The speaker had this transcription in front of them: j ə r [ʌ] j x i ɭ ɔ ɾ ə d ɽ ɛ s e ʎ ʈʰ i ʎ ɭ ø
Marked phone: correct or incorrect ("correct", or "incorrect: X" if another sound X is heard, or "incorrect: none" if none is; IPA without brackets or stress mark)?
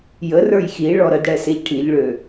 incorrect: ə˞